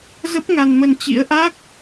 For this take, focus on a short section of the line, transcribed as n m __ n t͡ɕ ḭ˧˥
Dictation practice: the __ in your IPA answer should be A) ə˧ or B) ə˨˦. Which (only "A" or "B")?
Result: A